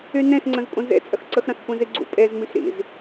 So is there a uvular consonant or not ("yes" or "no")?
no